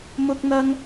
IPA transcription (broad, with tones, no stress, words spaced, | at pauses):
mʊ˥k̚n̪ɐ˥ŋ